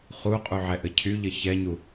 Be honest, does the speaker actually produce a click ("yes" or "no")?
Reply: no